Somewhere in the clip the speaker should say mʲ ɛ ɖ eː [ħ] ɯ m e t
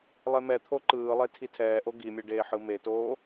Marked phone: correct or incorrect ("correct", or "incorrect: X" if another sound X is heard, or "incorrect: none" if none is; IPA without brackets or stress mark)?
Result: correct